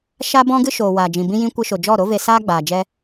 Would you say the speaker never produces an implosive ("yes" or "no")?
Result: yes